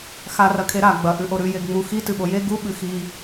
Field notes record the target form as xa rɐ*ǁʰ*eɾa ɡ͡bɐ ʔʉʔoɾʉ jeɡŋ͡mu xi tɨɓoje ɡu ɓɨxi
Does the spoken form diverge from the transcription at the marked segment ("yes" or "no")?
yes